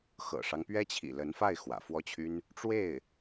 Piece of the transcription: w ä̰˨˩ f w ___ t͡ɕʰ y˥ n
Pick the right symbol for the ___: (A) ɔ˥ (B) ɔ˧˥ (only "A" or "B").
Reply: A